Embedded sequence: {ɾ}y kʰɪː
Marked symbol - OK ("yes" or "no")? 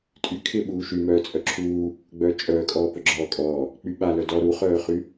no